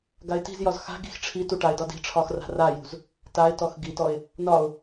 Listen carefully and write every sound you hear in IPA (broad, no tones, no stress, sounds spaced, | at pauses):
ɡ a ɪ̯ t i̤ z j ɒ z x a̤ ɡ i̤ x ʈ͡ʂʰ i t u ʈ a ɪ̯ d ɒ d i̤ ʈ͡ʂʰ ɒ x r a̤ r a j ṳ z | t a ɪ̯ t ɔ x ɡ i t ɔ ɪ̯ | n ɒ ʊ̯